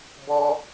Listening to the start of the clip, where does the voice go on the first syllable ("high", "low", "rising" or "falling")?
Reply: high